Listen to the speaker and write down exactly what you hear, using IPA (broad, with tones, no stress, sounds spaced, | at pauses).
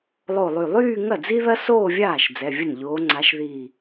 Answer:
lˠ o˧˩ lˠ y˧˩ lˠ yː˥˧ ŋ ɐ˥˩ d͡z i˥ ð ɐ˥ s oː˥˧ vʲ aː˥˩ ʃ d͡z ɛ˩˧˩ vʲ ə˥˩ n ʎ oː˨˦ ŋ͡ǀ a˨˦ ʃ ð i˧˩